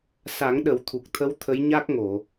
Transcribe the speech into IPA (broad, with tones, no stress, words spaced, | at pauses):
sa˨˩˦ŋ ɗə˨˩˦wt̪ʰu˨˩k̚t̪ʰə˧˥w t̪ʰə˧˥jɲa˦˥k̚ŋo˨˩˨